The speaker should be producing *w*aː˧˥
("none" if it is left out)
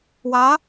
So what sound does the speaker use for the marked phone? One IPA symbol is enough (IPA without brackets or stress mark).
w